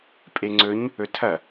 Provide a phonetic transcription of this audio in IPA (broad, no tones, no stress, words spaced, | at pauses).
pʼeŋ͡ǀɵɲ | ɵtʰɐ